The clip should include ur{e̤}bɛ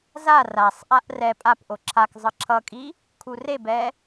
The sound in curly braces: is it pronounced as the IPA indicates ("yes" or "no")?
no